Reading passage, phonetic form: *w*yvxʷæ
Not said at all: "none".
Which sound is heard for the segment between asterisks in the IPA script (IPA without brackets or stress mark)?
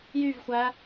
j